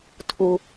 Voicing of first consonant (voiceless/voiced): voiceless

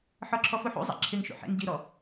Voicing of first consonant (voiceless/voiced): voiceless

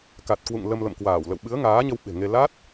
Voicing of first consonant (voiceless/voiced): voiceless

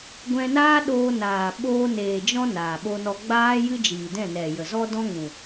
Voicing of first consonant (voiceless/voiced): voiced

